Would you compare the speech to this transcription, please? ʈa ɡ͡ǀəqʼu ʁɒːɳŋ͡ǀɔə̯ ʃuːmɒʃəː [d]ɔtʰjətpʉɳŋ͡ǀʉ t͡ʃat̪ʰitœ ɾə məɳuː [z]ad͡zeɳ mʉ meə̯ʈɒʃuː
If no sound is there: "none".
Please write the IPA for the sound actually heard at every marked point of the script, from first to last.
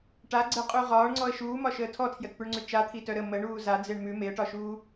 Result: tʰ, z

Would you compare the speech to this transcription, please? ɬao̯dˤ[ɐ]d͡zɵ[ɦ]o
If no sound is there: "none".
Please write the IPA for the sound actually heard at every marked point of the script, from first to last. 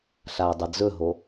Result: ɐ, ɦ

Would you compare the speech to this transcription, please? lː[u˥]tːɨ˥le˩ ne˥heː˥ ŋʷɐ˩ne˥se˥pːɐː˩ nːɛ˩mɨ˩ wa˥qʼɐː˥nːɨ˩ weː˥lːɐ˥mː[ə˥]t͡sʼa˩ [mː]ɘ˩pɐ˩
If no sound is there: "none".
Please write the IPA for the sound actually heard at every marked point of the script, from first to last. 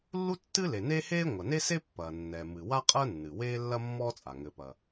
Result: u˥, ɔ˥, ŋ

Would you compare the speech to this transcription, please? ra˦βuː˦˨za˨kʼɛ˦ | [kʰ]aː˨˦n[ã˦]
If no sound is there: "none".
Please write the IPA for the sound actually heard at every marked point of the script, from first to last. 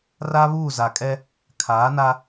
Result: kʰ, a˦

